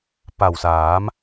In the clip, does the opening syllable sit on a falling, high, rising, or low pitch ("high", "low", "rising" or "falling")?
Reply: low